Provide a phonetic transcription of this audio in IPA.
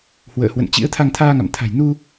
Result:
h w ə̰ː˧˨ h w ə̰˧˨ n t͡ɕ ḭ˧˥ ə̯ t̪ʰ a˧ ŋ t̪ʰ aː˧ ŋ a̰˧˨ m t̪ʰ a̤˨˩ j n u˧

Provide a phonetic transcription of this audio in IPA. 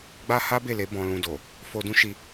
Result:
ɡ͡b a˦ h a˦ b e˦˨ l e˨˦ b ɔ̃˧ l ũ˧ d o˨ | f o˧ d ũ˦ ʃ i˧

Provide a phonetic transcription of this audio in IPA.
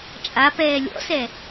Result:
t͡ʃʼ a p ɛː lʲ ɔ̰ s ɛ

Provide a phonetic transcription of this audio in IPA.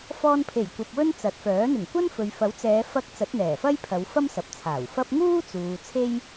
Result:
f ɔː˧ n pʰ e˨˩ j kʷ ɐ˨ p̚ w ɵ˥ n t͡s ɐ˨˥ t̚ f œː˨˥ n̪ ɪ˨˩ ŋ kʷ ɐ˥ n f ɵ˨ ɥ f ɐ˨˥ w t͡s ɛː˨˧ f ɐ˨˥ k̚ t͡s ɐ˨˥ t̚ n̪ ɛː˨˩ f ɐ˥ j pʰ ɐ˨˧ w f ɐ˥ m s ɐ˨ p̚ t͡sʰ aː˨˩ w f ɐ˥ p̚ ŋ uː˥ t͡s uː˨ t͡sʰ e˥ j

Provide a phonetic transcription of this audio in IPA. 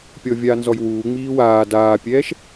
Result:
pʲ ɔ vʲ aː n z ɔ j w uː ŋ͡m iː w aː d aː pʲ ɛː ʃ

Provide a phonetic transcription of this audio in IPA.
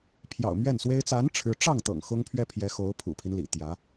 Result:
pʰ j ɑ̰˨˩ ʊ̯ m ɥ ɛ˥˩ n s w e˥ ɪ̯ t͡s a˧˥ n ʈ͡ʂʰ ɻ̩˧˥ ʈ͡ʂ ɑ˥˩ ŋ t̪ ɤ̰˨˩ ŋ x ʊ˥ ŋ pʰ ɥ ɛ˥ pʰ j ɛ˧˥ x o˧˥ ʊ̯ pʰ ṵ˨˩ pʰ i˦ n l ḭ˨˩ t̪ j ä˧˥

